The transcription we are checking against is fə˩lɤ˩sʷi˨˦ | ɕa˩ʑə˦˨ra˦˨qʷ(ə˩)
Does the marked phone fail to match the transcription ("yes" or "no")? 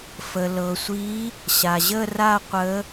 yes